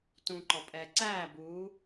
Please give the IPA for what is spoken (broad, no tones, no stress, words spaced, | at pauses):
tũǃɔpʼɛː ǀæː buː